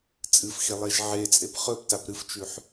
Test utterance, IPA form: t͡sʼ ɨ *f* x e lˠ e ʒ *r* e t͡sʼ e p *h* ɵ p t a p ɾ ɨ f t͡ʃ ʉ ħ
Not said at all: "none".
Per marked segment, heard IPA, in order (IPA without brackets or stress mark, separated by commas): f, ʕ, χ